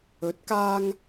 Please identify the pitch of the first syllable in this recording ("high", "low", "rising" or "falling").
rising